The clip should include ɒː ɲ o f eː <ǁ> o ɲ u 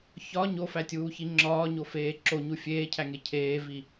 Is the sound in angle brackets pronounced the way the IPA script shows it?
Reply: yes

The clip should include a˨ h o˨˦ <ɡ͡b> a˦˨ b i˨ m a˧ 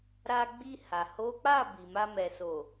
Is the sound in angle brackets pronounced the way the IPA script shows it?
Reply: no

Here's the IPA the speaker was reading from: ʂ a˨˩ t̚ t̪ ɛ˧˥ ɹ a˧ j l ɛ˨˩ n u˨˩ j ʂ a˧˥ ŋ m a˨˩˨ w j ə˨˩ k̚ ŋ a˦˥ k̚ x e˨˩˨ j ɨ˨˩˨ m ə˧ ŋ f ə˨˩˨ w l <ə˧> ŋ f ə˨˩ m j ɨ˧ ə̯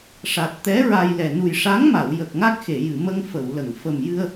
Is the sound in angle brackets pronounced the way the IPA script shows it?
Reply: no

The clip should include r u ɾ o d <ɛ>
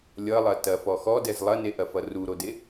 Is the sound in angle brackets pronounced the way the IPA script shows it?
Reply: no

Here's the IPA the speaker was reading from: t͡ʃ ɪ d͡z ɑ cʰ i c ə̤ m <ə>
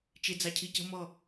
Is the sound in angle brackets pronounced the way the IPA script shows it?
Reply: no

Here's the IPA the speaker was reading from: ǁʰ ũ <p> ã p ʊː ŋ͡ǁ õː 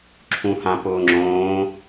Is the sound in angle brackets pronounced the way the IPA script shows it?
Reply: no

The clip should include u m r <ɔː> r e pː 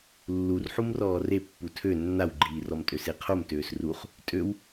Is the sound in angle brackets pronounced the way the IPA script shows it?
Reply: yes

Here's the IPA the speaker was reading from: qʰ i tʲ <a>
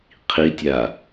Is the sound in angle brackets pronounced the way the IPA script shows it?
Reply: yes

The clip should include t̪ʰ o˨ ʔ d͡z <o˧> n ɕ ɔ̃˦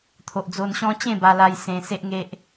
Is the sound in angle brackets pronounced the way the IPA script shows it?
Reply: yes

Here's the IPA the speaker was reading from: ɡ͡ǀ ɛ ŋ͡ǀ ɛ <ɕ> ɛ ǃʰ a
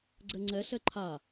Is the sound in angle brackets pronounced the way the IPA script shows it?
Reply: no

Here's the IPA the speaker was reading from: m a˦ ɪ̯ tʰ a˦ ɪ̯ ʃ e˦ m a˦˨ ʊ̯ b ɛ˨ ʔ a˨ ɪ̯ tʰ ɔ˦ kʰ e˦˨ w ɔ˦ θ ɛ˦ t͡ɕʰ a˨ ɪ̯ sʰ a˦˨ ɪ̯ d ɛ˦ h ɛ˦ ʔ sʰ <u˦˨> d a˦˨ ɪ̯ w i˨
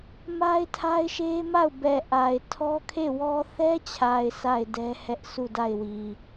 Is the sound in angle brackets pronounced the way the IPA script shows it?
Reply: yes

